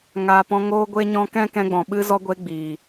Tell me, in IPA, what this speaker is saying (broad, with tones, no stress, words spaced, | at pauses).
ŋaː˧pɔ̃˧ ŋoː˧ɡʷe˧ɲɔ̃˧ kɛ̃˦kɛ̃˧ɡ͡bɔ̃˨ ɓɨ˧zɔ˧ɡʷe˧ ɡ͡biː˨